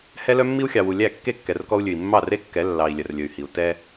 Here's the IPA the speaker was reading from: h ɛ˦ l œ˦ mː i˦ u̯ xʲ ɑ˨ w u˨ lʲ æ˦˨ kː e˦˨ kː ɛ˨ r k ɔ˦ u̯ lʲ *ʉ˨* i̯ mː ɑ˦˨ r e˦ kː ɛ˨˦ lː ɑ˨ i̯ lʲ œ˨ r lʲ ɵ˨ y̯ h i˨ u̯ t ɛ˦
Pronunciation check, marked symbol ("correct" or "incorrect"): correct